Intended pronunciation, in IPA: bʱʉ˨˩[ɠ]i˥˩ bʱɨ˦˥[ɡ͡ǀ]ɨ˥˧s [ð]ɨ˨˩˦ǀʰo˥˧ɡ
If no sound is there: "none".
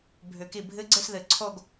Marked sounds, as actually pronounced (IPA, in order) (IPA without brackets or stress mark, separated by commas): k, ɡ͡ǀ, ð